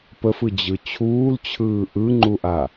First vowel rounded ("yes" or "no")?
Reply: no